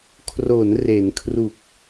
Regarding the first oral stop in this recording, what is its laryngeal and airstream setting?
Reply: aspirated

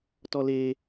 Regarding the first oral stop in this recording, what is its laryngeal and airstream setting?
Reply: plain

